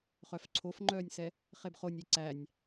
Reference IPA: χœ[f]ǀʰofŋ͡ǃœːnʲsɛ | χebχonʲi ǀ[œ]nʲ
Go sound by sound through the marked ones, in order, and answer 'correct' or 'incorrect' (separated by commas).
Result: correct, incorrect